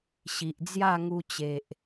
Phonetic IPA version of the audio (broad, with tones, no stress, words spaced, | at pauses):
ɕi˨ʔd͡zja˥˧ŋu˧t͡ɕe˨ʔ